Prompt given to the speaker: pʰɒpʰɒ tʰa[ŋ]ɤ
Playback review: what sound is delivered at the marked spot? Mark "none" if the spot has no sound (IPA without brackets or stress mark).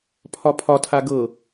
ɡ